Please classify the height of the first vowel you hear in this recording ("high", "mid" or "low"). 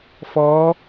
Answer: mid